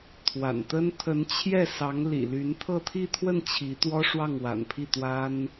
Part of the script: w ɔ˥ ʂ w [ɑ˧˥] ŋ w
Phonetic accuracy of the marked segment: incorrect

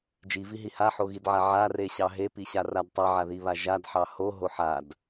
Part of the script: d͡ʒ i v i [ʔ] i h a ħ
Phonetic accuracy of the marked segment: incorrect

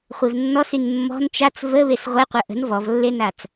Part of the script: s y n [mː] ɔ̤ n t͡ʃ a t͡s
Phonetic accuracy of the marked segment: correct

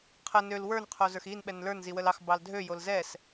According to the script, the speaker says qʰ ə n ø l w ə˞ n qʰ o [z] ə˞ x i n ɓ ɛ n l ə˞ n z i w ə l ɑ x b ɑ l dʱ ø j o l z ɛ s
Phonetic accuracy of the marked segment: correct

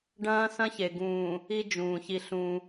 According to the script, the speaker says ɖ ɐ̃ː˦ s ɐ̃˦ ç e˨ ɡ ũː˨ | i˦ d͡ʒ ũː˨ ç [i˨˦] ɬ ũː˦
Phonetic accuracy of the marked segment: incorrect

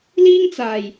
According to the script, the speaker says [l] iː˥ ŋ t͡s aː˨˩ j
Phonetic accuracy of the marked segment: correct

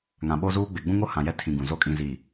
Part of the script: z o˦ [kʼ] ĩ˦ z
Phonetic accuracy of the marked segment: correct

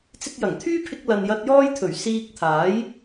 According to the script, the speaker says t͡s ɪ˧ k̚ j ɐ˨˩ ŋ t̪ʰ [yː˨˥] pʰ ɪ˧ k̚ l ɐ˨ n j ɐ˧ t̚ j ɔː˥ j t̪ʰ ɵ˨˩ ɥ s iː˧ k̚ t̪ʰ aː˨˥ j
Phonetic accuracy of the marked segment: incorrect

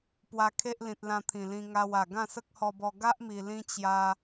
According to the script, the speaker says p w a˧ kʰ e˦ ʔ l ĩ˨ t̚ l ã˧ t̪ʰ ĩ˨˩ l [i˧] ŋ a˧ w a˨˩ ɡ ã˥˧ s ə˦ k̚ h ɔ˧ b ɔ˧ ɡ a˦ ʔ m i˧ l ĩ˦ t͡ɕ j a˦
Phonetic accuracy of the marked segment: incorrect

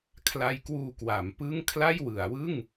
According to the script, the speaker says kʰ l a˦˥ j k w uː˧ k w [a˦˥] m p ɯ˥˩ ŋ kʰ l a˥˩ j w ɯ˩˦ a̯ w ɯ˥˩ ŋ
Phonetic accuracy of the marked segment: incorrect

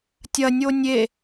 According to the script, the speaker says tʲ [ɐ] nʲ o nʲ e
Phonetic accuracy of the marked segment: correct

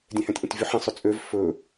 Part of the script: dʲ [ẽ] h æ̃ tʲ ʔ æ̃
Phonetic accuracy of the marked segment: correct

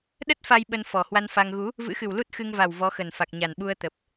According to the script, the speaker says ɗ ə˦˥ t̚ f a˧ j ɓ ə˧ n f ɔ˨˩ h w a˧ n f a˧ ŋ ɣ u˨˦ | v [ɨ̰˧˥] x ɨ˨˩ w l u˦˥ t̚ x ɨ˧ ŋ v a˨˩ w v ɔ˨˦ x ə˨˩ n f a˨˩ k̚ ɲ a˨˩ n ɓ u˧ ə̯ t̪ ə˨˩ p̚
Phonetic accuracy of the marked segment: correct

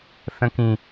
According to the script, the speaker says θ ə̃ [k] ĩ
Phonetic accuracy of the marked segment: correct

